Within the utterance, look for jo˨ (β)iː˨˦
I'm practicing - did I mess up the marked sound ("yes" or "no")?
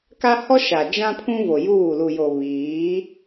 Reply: no